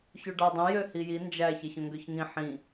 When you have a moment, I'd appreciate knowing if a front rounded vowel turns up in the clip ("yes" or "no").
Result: yes